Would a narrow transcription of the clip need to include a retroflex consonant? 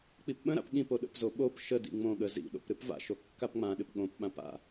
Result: no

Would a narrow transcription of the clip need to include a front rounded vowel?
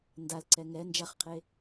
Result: no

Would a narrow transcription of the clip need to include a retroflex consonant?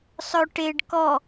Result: yes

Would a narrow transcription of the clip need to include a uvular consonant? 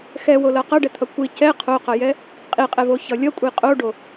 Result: yes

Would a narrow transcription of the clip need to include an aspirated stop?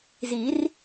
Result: no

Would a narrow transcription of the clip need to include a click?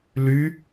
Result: no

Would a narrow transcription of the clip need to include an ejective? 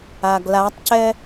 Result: no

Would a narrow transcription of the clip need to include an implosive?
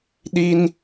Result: yes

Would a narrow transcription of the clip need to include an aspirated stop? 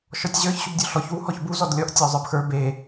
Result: no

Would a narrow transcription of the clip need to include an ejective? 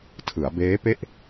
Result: no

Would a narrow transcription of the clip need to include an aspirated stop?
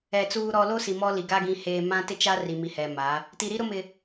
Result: no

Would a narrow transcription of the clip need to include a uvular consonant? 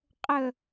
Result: yes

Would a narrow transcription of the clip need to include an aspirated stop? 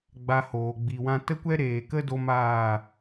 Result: no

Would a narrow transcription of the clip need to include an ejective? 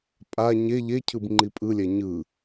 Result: yes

